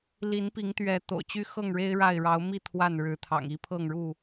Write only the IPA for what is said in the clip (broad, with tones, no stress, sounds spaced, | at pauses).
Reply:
l i˨˦ n p i˨˦ ŋ t̪ ɥ ɛ˨˦ t̪ o̰˨˩ ʊ̯ t͡ɕ y˦ x ɤ˥˨ ŋ ɻ e˦ ɪ̯ ɻ a˥˨ ɪ̯ ɻ ɑ˨˦ ʊ̯ m i˥˨ t̪ʰ w a˥˨ n ɻ ɻ̩˨˦ t̪ʰ ɑ̰˨˩ ŋ i˦ pʰ ɤ˥˨ ŋ ɻ u˥˨